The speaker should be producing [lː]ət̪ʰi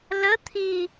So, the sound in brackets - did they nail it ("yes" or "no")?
no